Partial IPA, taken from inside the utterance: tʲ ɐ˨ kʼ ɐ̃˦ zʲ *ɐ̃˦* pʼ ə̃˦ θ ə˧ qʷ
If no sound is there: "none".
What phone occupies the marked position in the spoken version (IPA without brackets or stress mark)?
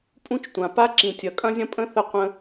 ɐ̃˦